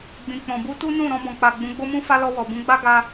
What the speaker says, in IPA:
ɡ͡b ĩ˨ k͡p ɔ̃˨ b u˧ t u˦ n ũ˦˨ ɾ ɔ̃˧ b ɔ̃˨ k͡p a˨ ɡ͡b ũ˨˦ ɡ͡b o˦ m ũ˦ f a˦ l ɔ˧ w ɔ˨ b ũ˨˦ ɡ͡b a˦ ɡ a˦

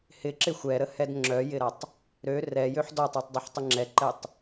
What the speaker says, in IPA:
h ɪ ǁ ɪ xʷ ɛ ɾ ə h ɛ d ŋ͡ǁ œ j ɪ ɾ a tˤ | ɾ ø r ɛ j ø ħ d ɔ tˤ i tˤ dˤ ɪ ħ tˤ ɪ ŋ͡ǁ ɛ ǃ ɛ tˤ

